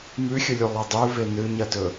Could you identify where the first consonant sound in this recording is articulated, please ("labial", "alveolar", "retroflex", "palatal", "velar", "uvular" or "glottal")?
labial